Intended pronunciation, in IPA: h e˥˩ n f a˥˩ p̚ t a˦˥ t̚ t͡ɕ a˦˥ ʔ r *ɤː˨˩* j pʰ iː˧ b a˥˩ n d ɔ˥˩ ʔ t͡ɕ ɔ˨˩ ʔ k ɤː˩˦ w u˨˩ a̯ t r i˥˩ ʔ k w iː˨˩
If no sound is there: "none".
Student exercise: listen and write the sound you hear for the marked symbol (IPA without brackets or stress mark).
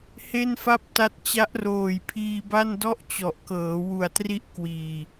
oː˨˩